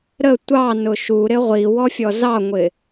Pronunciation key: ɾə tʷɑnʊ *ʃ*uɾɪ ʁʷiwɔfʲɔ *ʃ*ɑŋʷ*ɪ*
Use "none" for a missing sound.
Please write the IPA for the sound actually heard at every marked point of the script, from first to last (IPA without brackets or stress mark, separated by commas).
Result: ʃ, z, ɪ